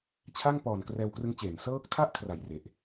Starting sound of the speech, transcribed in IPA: t͡ɕʰ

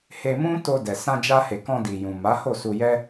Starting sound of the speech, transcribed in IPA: h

